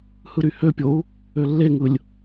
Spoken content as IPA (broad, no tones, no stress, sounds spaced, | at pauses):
h ɯ ɾ y h ø pʲ o u̯ | ø lː e ŋ ɯ lʲ